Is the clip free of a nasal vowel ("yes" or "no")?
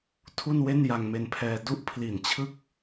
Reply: yes